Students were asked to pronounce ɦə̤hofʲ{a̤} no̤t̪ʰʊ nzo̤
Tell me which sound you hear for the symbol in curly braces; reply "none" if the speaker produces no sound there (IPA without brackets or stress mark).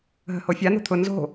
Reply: a